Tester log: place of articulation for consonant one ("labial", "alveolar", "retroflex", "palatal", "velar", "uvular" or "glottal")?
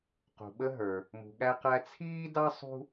uvular